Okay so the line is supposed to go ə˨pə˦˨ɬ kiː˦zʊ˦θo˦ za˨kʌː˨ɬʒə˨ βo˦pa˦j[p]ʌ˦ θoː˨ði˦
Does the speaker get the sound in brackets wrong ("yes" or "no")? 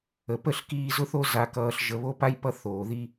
no